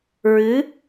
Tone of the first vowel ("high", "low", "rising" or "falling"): rising